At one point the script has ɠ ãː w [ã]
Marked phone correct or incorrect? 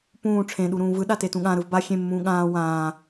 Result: incorrect